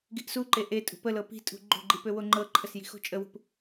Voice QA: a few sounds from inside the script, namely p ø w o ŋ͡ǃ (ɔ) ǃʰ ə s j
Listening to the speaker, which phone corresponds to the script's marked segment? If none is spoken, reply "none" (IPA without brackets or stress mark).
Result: ɤ